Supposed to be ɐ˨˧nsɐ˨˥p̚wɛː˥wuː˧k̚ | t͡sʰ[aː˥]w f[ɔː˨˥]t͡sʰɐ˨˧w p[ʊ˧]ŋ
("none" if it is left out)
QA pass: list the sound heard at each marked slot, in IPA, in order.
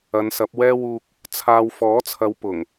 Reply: aː˥, ɔː˨˥, ʊ˨˩

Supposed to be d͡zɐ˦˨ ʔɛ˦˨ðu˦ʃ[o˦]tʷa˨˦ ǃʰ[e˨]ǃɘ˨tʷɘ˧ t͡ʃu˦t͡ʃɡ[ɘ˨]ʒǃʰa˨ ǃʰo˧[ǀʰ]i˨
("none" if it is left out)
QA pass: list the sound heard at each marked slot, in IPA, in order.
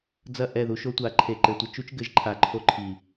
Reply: o˦, e˨, ɘ˨˦, ǃʰ

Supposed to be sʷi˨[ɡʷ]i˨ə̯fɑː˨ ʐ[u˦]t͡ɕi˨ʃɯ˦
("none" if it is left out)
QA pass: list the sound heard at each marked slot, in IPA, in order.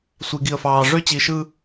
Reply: ɡ, ø˦

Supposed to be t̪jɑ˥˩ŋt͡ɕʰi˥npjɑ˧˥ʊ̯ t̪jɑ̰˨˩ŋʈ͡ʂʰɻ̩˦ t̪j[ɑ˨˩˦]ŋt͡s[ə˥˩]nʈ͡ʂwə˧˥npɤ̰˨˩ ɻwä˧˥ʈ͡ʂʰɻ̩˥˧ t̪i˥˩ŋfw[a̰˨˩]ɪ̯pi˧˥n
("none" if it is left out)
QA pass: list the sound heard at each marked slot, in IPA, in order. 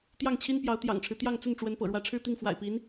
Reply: ɑ˥˧, ə˥˩, a̰˨˩

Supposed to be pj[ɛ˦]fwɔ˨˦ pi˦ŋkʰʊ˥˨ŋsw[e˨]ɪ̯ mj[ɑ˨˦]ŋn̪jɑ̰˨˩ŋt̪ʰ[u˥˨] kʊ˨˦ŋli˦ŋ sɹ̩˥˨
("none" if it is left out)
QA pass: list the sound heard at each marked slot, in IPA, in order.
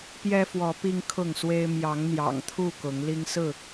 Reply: ɛ˦, e˦, ɑ˨˦, u˥˨

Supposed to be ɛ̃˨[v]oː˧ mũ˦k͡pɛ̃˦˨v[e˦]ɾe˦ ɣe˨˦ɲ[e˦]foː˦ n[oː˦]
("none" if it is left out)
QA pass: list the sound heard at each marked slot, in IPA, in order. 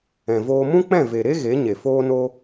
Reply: v, e˨, e˨, o˦

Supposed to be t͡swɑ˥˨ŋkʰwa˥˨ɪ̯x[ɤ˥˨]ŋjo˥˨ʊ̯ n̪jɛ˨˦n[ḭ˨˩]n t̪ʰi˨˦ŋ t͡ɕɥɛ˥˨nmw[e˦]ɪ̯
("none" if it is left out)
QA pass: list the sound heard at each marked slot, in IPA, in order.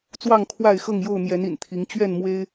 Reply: ɤ˥˨, ḭ˨˩, e˦

